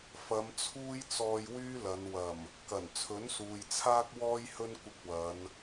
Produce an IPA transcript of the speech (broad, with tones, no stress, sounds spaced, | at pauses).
f ɐ˨˧ m t͡sʰ uː˥ j t͡s ɔː˧ j w yː˥ l ɐ˨˧ n w ɐ˨˩ m | k ɐ˨˩ n t͡sʰ ɵ˨˥ n s uː˨ j t͡sʰ aː˥ k̚ w ɔː˥ j h ɵ˥ n kʷ ɪ˧ k̚ w ɐ˨˧ n